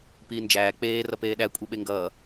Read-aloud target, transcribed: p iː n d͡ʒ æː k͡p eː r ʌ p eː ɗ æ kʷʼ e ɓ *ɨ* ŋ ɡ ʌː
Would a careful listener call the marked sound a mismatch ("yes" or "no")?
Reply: yes